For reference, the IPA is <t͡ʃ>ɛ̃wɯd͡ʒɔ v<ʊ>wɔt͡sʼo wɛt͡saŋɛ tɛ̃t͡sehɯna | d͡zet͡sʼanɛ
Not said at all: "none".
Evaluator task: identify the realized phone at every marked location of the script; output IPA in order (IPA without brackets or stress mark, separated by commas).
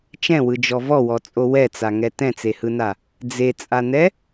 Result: t͡ʃ, ɔ